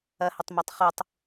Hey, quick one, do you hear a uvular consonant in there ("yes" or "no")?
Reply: yes